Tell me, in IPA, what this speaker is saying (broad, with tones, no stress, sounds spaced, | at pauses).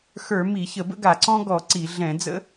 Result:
x ə˞˧˩˧ m i˧˩˧ ç ə˧˩˧ b ə̰˥ ɡ a˧˩˧ ǀ ɔ̃˥ ɡ ɔ˧˩˧ ǀ i˧˩˧ ɮ ɛ̃˧˩˧ d͡z ə̰˥